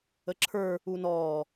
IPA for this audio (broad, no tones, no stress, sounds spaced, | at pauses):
ə ǁʰ ə˞ | u n ɔː